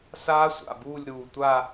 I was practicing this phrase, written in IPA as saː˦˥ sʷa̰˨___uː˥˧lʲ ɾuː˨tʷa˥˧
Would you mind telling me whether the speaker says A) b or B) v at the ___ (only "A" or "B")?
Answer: A